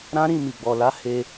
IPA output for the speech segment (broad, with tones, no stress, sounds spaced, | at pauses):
ɾ ã˦ ɾ ĩ˦˨ m i˨ ɡ͡b ɔ˨ l a˨˦ h e˧